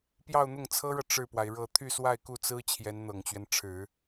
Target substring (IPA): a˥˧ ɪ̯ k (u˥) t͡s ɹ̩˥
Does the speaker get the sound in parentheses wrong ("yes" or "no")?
yes